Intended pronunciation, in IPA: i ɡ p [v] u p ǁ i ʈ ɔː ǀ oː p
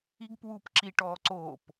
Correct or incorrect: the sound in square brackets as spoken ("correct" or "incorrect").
incorrect